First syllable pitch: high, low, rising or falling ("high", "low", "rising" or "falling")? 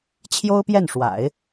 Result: high